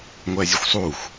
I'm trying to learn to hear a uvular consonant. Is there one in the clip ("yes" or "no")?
no